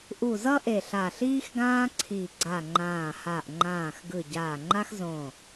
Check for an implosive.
absent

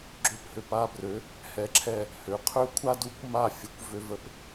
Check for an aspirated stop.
present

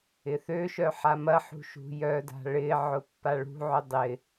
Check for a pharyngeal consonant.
present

